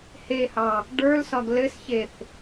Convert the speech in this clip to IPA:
hehɑ | ɖə˞lsɒɡ lɘsçeθ

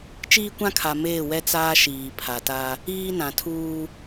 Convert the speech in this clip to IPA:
t͡ʃiː˦kʷã˦kʰa˨ meː˦˨wɛ˦ t͡saː˦ ʃiː˨pʰa˨ta˦ | iː˦nã˨tʰuː˦

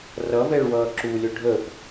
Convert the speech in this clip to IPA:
rʌvɛɭwʌː ǁulʲo ɖʱəp

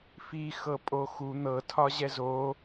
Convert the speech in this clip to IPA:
fi xɤpʼoxu n̪ɤtʰɒ ʑɛzo

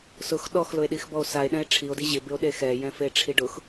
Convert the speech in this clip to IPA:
sʊx ɗɔxlʊe̯ɗixbɔo̯ sae̯ɗɛ̃e̯ ʈ͡ʂʰio̯di ʑɪbɪo̯ɗe xɛjɛ̃feʈ͡ʂʰi ɖʊx

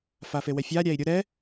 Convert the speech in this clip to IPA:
fafewɛfʲa ɾʲæi̯ɾʲʊ ɾɛ

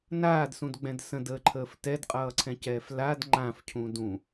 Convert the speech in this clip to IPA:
naːdsũdɡ͡bɛ̃d sə̃dəːǃʰəːf tɛdqʼʌːǀʰɛ̃cɛːf lad ŋ͡ǃãfcʰũ dũ

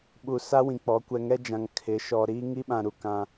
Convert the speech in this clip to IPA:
ɓu˨sa˦wĩ˨k͡pɔ˨˦ kʷɛ˨ŋɛ˦d͡ʒã˨ŋ kʰɪ˨˦ ʃɔ˨ɾiː˦ ŋi˦ɓã˨ɾu˨ kã˦

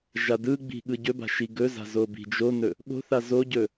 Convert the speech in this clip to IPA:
ʒadɯɡ͡bi̤ ɠɯɟɵba̤ ʃiɡɵza̤ zobi̤d͡ʒonɵ | ɠo̤θa zoɟɵ

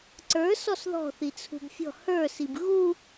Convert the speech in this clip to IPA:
ǀə˞ sɔsðɔ̤ θit͡sʰṳbfʲɔ̤ hə˞sib ɣu

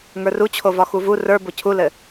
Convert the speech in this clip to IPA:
ŋə˞rut͡ɕʰo vɒxuvu rə˞ bocʰulɘ

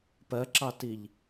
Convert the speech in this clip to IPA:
pɜǁɑtiʎ

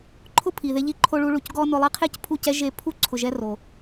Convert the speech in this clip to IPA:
ǃʰʊ˦pʰi˨ðe˧ʎi˧ ǃʰo˧ɭu˧ ɭu˨cɡɔ˦nʊ˧lˠi˦ qʰe˦cpʰu˦˨cɛ˦ ʒe˧ pʰu˦ ǀʰʊ˨ʒɛ˧ ro˨

